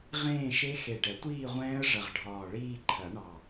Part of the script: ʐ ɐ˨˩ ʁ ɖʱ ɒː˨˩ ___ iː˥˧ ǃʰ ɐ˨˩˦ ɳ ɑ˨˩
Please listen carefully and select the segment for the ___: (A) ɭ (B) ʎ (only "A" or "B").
A